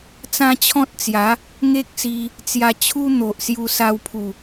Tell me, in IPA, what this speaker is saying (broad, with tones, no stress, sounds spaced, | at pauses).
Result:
t͡s ã˦ t͡ɕʰ ɔ̃˦ t̚ t͡s j a˨˦ | ŋ e˦ k̚ s i˧ | t͡s j a˧ t͡ɕʰ u˦ n̪ o˨ ʔ s j u˧ s a˧ w pʰ u˨˩